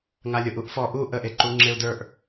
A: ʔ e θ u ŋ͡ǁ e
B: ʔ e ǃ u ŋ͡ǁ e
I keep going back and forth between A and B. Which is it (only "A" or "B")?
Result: B